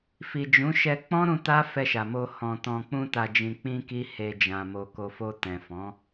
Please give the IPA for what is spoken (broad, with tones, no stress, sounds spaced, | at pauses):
f i˨ d͡ʒ ũ˨˦ ʃ ɛ˧ k͡p ɔ̃˦ ɾ ũ˧ t a˦ f ɛ˧ ʃ a˨ m o˧ h ɔ̃˨ t ɔ̃˨ k͡p ũ˧ t a˨ d͡ʒ ĩ˨ k͡p ĩ˧ k i˦ h e˧ d͡ʒ ã˨ m o˨ k o˨ f o˧ t ɛ̃˨ f ɔ̃˨˦